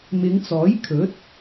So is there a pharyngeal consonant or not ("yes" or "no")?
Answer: no